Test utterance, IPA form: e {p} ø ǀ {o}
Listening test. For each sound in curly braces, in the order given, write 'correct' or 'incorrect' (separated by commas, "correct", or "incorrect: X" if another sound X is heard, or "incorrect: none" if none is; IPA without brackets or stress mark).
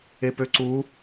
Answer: correct, incorrect: u